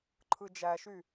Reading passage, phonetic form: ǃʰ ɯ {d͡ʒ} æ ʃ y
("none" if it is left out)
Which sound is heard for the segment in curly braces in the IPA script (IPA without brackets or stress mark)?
d͡ʒ